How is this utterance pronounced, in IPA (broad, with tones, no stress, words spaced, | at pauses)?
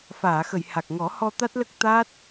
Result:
faː˨˩˨xə˨˩˨jha˨˩k̚ŋɔ˨˩˦ hɔ˧ t̪a˦˥t̚lə˦˥k̚ t̪a˦˥t̚